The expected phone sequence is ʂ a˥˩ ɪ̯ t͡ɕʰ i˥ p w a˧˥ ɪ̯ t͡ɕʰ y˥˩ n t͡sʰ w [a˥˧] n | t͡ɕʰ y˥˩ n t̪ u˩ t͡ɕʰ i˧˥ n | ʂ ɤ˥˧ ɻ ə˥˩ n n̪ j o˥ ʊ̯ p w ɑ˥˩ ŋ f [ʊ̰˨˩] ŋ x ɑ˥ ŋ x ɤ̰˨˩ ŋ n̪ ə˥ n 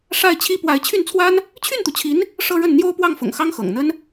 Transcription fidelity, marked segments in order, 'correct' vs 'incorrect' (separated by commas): incorrect, correct